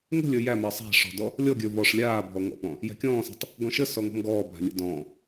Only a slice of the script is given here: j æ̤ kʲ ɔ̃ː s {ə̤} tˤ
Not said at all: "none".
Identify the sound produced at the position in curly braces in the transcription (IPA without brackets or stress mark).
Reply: æ̤